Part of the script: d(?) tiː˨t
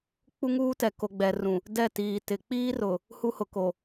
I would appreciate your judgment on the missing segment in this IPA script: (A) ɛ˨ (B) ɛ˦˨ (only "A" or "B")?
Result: B